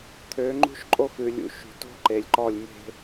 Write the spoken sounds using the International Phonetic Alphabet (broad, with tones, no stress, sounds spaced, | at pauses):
t̪ʰ ø˨˦ ŋ͡ǃ ṳ˦ ʃ ǃʼ o˦ x ʉ˨ lʲ ṵ˨ ʃ ṳ˨ t o̤˦ ǃ e˨ lʲ ǃ ɔ˦˨ lʲ m e̤˦